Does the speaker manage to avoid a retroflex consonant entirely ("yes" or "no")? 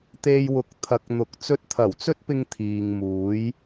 yes